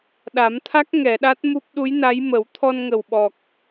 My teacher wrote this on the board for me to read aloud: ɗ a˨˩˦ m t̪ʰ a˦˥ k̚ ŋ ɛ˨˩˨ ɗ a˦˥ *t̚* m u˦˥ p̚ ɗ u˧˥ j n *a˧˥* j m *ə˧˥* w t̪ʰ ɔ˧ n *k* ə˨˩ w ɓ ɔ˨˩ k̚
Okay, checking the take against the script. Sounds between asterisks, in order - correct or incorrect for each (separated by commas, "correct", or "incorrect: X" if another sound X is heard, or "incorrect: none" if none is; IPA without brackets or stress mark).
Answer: correct, correct, incorrect: ə˨˩˦, incorrect: ŋ